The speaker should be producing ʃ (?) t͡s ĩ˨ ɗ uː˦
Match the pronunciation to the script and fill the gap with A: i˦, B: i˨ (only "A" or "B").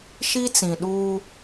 A